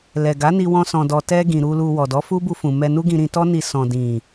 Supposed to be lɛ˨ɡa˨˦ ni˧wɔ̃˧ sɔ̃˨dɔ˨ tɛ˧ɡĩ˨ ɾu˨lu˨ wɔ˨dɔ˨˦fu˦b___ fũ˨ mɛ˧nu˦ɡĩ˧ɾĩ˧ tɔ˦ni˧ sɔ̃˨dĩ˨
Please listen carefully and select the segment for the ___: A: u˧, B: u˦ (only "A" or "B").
A